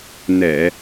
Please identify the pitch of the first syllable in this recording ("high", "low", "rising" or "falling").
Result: low